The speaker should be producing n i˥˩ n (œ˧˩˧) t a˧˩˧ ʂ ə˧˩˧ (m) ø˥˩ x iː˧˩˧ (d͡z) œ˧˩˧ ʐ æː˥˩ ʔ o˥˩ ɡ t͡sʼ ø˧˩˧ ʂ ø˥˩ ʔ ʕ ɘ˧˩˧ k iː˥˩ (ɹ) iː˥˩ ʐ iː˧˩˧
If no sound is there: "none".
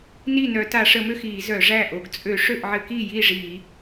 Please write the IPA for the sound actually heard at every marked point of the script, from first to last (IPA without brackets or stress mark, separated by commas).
œ˧˩˧, m, z, j